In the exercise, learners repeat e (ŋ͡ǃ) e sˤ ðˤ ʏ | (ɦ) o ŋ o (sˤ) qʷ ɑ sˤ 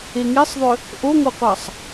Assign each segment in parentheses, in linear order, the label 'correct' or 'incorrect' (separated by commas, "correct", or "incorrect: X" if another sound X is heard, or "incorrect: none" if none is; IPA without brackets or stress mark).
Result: incorrect: ŋ, incorrect: ʔ, incorrect: none